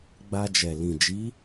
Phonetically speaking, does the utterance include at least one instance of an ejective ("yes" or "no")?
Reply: no